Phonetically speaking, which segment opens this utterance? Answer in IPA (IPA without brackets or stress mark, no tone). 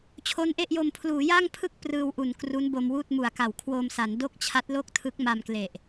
t͡ɕʰ